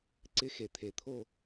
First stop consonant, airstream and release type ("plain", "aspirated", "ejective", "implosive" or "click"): click